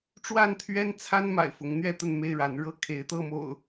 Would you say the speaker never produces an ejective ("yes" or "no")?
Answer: yes